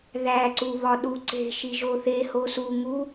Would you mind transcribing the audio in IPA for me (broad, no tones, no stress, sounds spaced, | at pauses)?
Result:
ð æ ǀ u β ɒ ɗ u ǀ e̤ ʃ i ʒ o θ e h o s u ŋ u